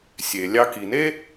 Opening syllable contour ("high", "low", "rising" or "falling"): low